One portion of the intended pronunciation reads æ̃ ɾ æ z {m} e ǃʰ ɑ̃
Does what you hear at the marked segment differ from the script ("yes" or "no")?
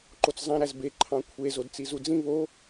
yes